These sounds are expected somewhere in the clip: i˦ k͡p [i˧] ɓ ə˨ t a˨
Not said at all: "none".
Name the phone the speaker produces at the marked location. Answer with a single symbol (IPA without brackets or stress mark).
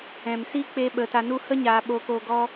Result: e˧